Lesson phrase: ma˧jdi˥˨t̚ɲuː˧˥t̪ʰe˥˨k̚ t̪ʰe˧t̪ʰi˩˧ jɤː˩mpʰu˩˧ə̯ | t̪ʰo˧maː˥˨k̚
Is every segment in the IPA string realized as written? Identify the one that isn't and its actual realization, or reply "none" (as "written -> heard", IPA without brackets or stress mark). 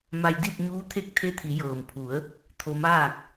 none